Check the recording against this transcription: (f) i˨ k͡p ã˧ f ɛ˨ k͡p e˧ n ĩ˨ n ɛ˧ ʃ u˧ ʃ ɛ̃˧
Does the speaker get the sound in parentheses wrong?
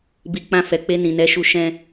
yes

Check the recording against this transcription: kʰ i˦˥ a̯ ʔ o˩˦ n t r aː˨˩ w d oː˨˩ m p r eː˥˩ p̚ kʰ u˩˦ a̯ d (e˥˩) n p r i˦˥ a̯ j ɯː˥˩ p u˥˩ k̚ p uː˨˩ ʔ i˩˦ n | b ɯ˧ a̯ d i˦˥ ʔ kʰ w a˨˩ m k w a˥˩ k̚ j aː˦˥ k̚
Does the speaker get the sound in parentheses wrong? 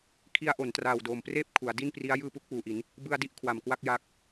yes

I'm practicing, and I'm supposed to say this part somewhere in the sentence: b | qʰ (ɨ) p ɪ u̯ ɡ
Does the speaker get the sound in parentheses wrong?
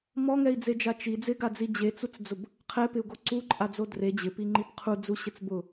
yes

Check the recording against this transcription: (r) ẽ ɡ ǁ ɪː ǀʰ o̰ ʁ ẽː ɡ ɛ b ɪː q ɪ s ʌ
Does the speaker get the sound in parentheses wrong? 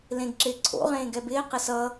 yes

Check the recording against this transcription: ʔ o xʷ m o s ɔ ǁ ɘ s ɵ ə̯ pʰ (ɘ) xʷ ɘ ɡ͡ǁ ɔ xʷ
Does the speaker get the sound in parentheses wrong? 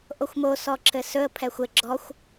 yes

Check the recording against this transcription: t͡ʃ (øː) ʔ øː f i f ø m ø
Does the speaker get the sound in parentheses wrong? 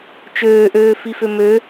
no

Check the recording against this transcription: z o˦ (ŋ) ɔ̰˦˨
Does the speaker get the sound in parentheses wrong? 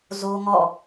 no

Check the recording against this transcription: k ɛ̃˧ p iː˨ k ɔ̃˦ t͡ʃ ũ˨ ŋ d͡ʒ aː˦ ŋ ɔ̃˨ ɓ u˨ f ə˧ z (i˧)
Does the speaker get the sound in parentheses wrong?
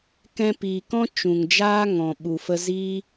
yes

